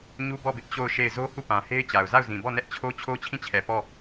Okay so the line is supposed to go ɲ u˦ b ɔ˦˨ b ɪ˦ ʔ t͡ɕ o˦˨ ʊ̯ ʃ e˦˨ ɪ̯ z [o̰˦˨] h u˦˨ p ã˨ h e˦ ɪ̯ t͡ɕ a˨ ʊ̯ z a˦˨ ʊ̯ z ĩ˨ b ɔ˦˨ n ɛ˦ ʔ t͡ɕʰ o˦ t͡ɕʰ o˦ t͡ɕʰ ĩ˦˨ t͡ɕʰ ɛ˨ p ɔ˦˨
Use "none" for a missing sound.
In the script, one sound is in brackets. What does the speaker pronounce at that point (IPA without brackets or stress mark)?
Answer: o˦